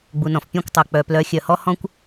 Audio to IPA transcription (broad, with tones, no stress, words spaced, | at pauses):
ɡ͡bu˩nɔ̃˩f pʲɔ̃˥˩kʷtˤo˩ k͡pœ˩ plœ˩˥xʲœ˩hɔ˥ hɔ̃˥kʷ